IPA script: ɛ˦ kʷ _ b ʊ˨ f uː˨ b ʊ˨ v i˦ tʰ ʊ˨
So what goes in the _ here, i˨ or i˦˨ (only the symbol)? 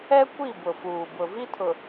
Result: i˦˨